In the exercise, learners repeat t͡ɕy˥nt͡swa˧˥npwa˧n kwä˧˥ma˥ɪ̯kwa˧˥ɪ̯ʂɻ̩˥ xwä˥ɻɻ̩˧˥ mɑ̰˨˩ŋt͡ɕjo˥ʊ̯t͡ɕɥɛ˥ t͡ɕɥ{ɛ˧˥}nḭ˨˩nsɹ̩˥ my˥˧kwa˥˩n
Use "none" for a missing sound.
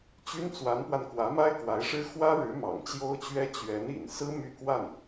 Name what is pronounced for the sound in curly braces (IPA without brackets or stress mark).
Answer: ɛ˧˥